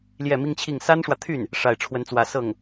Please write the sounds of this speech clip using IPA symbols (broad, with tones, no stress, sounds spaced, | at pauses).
l j ɛ˥˩ m i˥ ŋ t͡ɕʰ i˥˩ ŋ s a˥ n ʂ w ä˨ t̪ʰ y˥˩ n | ʂ a˥˩ ɪ̯ ʈ͡ʂʰ w ə˥ n t͡s w ä˥˧ s ɤ˥˩ ŋ